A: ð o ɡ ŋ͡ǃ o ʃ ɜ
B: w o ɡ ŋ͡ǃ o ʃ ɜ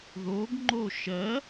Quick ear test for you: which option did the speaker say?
A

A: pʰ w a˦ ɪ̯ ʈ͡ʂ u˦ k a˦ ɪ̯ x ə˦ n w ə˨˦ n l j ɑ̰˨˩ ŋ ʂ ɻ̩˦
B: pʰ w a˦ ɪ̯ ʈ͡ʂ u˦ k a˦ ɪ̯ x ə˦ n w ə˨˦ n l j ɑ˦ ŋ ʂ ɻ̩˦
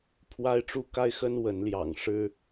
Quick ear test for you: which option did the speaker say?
A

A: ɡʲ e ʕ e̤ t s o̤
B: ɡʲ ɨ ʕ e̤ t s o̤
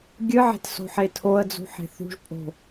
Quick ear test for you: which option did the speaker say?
B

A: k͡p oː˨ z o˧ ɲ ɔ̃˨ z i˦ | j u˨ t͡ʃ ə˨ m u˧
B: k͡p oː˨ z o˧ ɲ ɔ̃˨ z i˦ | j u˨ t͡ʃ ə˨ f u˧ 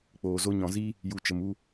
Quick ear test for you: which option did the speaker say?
A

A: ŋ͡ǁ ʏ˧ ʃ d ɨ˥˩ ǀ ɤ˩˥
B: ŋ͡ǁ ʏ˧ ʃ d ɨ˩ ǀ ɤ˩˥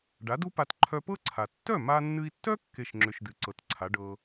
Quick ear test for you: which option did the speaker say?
B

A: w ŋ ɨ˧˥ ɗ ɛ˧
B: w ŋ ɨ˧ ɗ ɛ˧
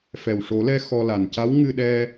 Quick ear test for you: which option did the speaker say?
B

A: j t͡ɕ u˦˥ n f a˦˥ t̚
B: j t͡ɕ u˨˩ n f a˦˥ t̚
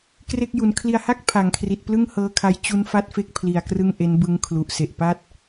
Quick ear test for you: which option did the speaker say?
A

